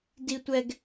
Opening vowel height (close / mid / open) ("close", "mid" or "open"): close